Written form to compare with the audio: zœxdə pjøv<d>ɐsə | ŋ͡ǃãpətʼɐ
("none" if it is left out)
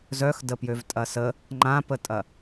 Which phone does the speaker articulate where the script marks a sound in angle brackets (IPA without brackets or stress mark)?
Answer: tʼ